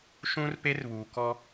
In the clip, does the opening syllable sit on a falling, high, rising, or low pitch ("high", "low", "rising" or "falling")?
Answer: high